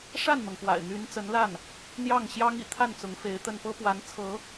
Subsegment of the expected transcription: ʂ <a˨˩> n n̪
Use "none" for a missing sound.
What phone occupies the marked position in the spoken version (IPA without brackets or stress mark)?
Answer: a˥˩